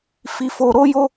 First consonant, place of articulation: labial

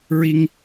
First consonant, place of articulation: alveolar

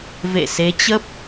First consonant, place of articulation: labial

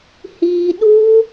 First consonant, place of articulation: glottal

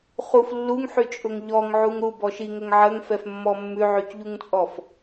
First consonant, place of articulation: uvular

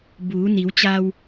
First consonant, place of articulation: labial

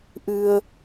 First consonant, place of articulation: glottal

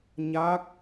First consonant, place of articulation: palatal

